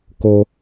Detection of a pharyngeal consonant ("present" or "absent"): absent